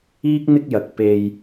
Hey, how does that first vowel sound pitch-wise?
high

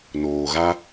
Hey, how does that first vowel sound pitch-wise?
low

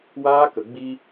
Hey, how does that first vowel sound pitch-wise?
high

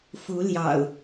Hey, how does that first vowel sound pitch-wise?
rising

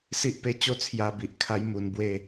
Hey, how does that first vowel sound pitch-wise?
high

